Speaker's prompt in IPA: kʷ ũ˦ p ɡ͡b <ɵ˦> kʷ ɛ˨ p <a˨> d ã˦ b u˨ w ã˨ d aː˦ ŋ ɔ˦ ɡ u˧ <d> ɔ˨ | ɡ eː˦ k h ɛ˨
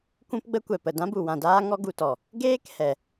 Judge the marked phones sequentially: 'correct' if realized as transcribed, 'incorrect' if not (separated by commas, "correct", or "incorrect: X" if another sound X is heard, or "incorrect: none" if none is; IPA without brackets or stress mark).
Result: incorrect: ə˦, incorrect: ə˨, incorrect: t